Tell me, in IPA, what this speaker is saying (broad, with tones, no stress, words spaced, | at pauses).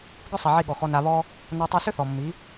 ɡʏ˦sˤi˨ʕi˧ ɠɔ˨xɔ˧ na˧βɔ˦ | nɐ˦tˤɯ˦ sʏ˦θɔ˨mːi˨˦